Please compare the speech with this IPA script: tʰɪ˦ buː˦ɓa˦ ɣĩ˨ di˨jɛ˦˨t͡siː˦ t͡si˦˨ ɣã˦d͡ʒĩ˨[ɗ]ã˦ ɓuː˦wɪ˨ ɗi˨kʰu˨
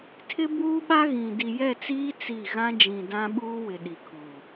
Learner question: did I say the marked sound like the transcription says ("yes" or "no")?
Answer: no